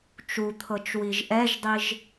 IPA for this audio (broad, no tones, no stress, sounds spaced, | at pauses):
t͡ʃ u t̪ʰ ɤ t͡ʃ w i ʒ ʔ ɛ ʒ dˤ i ʒ